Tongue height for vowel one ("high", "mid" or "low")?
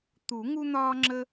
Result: high